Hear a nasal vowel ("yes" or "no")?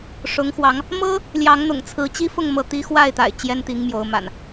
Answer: no